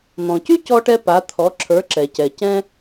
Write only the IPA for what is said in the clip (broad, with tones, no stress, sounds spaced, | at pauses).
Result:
n̪ ɔ̃˩ c y˥ c ɔ˧ ʈ ɛ˧ p a˩˥ t̪ʰ ɔ˩˥ ǁʰ ə˞˩˥ ǁ ɛ˩ c ɛ˩ c ɛ̃˧